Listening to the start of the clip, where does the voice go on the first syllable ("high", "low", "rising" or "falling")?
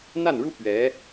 falling